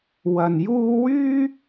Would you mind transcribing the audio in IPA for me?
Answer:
w ɐ˧ n j uː˥ w yː˥

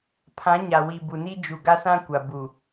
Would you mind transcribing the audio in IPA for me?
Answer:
pʰ ã˨˦ ɲ a˨ w i˨ b u˨ n i˦ d͡ʒ u˨ ɡ a˦ s ã˦ kʷ a˨ b u˨

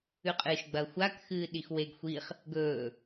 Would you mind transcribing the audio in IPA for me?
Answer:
ʉ qʼ ɨː ʃ ɡ͡b ɐː xʷ a k x ɨː ɗ i x w e ɡ xʷ i χ | ɡ ɵː

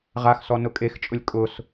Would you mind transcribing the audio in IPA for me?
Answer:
ʁ a x s ɔ n ʊ kʼ e x t͡ʃʼ ʊ lʲ kʼ ʊ s

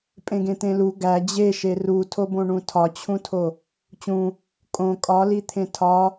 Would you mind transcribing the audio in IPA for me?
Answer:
pʼ ẽ ɡ ẽ t̪ ẽ l u ɡ æ d͡ʑ e ʃ e r u tʰ o b õ ɳ ũ tʰ ɒ t͡ɕʰ ũ tʰ o | t͡ɕ ũ | kʼ õ kʼ ɒ l i t̪ʰ ẽ tʰ ɒ

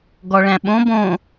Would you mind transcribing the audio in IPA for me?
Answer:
ɡ ɔ ɭ æ̃ ɓ õ b õ

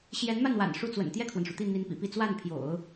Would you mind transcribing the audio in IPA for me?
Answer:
ɕ j ɛ˧˥ n m a˥˩ n w a̰˨˩ n ʂ u˥˩ t͡s w ə̰˨˩ n t̪ j ɛ˥˩ kʰ w ə˩ n ʂ u˩ t̪ i˥˩ n̪ i˧˥ n p ḭ˨˩ p i˥˧ t͡s w a˥˩ n pʰ j o̰˨˩˦ ʊ̯

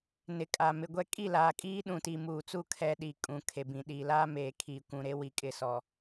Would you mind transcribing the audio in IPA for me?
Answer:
n ɪ˨ kʼ a˨ m ɪ˨ ɡʷ ɛ˦ kʼ i˦˨ l aː˨ kʼ iː˦ ɗ ũ˨ t i˨ m uː˨ t͡s u˦˨ kʰ ɛ˦ ɗ i˨ kʼ ũ˨ kʰ e˨ b ĩ˨ ɗ iː˨ l aː˦ m eː˨ kʰ iː˨ kʷ ũ˨ ɾ e˦ w i˨ kʼ ɪ˨ s ɔ˨

